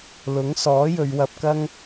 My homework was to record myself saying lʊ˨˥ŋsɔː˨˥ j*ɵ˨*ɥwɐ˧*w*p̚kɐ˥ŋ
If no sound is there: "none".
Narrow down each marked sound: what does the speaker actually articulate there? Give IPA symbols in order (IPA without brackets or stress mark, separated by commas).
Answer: ɵ˨˧, none